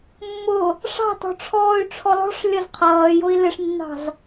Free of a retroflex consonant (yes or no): no